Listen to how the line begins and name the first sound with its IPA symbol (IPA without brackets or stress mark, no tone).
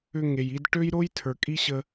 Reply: ʏ